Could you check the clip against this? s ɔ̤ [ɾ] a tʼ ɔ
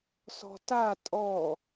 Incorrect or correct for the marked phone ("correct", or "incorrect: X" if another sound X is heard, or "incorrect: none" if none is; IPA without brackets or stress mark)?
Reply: incorrect: t